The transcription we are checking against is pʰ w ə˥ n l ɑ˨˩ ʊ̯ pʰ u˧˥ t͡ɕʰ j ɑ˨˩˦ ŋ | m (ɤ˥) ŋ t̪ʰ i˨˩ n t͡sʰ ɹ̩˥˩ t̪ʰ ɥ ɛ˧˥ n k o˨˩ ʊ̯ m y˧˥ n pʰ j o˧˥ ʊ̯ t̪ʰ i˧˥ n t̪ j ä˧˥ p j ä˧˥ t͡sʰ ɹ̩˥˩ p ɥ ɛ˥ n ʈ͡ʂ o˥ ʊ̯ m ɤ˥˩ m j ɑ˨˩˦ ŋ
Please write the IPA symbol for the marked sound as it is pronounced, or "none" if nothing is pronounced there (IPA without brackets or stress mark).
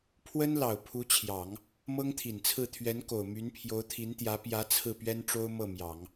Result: ɤ˥